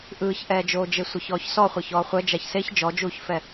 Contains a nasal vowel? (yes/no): no